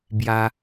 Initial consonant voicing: voiced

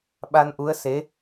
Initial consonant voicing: voiced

